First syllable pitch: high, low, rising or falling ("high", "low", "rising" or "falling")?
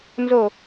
falling